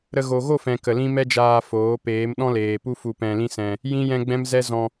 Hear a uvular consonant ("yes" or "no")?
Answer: no